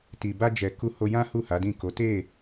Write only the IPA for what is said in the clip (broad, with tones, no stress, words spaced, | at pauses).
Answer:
ti˨ba˧d͡ʒɛ˨ ku˧ho˧jã˦hu˦˨ ha˨˦dĩ˦˨ko˨˦ te˦˨